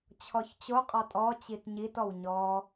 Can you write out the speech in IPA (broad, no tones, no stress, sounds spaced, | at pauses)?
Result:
t͡ɕʰ ɔ ç t͡ɕ o qʼ ɔ tʼ ɔ t͡ɕ i t ɲ i t ɔ w ɲ ɔ